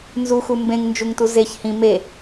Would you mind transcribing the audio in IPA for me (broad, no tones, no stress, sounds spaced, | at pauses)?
n z u x u m b ẽ ŋ n d͡ʒ u ŋ t u z e ç h ĩ m e